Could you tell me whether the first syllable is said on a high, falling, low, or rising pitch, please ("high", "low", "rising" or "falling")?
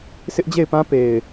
high